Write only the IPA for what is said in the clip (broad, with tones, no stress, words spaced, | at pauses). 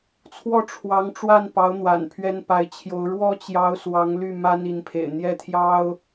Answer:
t͡sʰwɔ˥˩ʈ͡ʂʰwɑ˧˥ŋʈ͡ʂwa˥˩npɑ˧˥ʊ̯ n̪wa̰˨˩npʰɥɛ˥npa˧˥ɪ̯t͡ɕʰjo˧˥ʊ̯ ɻwɔ˥t͡ɕjɑ˧˥ʊ̯ swɑ˧˥ŋly˥˩ma˥n i˧˥npʰḛ˨˩ɪ̯ n̪jɛ˥˩t̪ʰjɑ˥ʊ̯